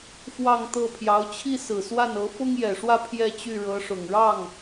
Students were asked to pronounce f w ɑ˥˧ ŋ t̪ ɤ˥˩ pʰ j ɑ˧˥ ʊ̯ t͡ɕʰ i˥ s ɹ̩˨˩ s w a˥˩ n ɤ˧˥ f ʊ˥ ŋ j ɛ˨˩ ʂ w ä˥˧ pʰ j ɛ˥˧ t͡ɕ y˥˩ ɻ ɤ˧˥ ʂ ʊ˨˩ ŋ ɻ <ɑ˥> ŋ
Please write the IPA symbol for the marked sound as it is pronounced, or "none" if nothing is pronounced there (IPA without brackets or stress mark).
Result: ɑ˥˩